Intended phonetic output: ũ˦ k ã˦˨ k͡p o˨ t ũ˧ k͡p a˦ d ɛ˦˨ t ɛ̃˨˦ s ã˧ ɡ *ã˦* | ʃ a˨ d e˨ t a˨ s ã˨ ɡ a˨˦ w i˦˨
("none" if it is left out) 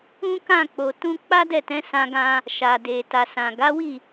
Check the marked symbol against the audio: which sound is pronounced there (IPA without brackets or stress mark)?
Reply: ã˧